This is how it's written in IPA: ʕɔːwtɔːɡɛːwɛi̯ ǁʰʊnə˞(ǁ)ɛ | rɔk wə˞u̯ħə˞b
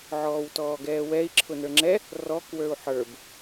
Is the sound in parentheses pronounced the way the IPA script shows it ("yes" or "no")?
no